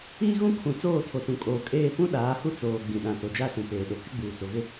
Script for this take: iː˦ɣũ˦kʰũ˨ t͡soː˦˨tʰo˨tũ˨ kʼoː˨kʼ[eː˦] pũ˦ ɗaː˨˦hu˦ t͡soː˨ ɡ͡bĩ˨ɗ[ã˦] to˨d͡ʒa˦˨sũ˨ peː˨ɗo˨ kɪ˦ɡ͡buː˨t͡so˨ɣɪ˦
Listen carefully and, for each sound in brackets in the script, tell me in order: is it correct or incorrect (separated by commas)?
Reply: incorrect, incorrect